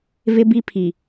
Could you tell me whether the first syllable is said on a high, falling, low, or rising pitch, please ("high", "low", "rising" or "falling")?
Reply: high